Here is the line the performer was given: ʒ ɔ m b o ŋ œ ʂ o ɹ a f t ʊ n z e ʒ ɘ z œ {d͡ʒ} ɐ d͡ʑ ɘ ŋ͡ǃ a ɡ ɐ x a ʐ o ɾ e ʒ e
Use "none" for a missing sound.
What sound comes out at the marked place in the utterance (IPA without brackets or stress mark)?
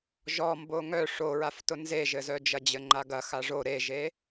d͡ʒ